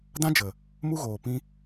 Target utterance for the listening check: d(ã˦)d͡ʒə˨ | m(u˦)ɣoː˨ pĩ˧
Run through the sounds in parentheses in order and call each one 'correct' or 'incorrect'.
correct, correct

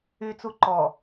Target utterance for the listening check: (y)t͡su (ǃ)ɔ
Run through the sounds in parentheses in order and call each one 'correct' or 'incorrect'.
correct, correct

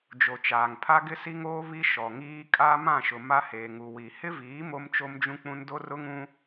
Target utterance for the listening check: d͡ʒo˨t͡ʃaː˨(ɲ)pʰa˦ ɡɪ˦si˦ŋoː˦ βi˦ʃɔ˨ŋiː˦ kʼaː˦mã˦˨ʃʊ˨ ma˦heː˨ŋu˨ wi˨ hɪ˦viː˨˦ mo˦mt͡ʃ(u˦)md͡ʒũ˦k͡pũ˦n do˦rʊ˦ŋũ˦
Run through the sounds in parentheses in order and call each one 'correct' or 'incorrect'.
incorrect, incorrect

